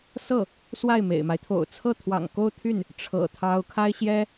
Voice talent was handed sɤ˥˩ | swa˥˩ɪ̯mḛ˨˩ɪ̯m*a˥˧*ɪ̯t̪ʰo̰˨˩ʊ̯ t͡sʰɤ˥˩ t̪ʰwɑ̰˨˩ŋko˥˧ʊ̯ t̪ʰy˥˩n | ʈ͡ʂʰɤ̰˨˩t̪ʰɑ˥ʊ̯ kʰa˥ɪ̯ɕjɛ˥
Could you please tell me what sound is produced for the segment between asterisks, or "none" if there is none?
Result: a˦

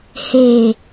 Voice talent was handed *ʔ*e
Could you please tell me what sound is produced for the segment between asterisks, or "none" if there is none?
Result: h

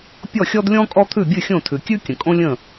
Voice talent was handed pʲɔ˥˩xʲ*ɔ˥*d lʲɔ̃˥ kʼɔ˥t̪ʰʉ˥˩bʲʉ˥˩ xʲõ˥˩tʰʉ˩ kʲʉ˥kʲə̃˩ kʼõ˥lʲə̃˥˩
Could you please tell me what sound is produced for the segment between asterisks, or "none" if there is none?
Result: ɔ˥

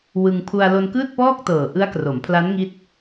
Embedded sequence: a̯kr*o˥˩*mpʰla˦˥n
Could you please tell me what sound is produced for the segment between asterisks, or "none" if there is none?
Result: o˩˦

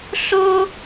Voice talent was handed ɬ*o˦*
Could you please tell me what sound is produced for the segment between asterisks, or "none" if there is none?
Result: o˦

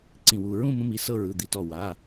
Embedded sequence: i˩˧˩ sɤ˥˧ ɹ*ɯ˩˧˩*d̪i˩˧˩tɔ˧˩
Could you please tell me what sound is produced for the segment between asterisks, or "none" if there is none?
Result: ɯ˩˧˩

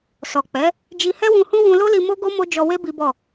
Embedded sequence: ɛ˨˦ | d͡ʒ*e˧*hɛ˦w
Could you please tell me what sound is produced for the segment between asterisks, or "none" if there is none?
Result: i˧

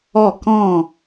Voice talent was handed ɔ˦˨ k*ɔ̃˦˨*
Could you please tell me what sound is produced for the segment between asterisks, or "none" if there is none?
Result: ɔ̃˦˨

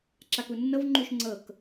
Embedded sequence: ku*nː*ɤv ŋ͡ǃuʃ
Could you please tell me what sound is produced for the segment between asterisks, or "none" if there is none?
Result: nː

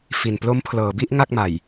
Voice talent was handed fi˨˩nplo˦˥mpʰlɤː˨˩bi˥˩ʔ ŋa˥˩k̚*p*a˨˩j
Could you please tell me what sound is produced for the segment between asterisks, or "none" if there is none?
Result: m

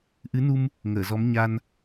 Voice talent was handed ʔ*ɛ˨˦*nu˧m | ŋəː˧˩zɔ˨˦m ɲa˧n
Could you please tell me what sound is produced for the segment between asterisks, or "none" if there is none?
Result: ɨ˨˦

